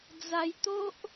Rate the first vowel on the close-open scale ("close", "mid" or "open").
open